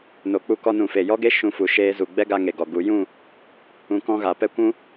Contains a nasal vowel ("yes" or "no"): yes